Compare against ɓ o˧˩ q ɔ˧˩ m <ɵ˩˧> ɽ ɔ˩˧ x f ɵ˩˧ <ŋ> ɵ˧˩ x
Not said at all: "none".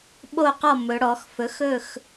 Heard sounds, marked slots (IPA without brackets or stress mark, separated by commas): ɵ˩˧, x